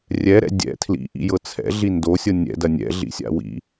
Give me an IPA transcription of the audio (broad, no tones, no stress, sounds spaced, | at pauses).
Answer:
rʲ ɛ ɾ ɛ̰ dʲ ɛ̰ tʰ l ḭ ʔ ḭ j ɤ t͡sʰ ɛ̰ ɮ i n d o sʲ ɤ nʲ ɛ̰ d ɐ nʲ ɛ̰ ɮ ḭ sʲ a̰ w ḭ